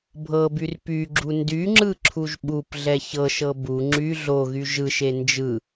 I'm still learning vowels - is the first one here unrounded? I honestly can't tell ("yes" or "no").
yes